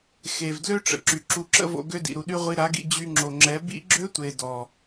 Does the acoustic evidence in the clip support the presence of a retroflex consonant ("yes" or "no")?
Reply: yes